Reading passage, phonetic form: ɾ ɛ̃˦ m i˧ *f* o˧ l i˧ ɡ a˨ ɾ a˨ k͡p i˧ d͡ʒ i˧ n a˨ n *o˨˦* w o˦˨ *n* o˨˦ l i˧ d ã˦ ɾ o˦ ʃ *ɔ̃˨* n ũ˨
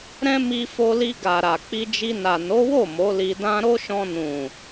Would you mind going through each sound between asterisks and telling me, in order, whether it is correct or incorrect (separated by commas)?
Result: correct, correct, incorrect, incorrect